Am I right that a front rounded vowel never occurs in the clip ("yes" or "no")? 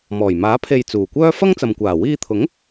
no